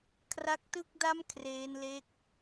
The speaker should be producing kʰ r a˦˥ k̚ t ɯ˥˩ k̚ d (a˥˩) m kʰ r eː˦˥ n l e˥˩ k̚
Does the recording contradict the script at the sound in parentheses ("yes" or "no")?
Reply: no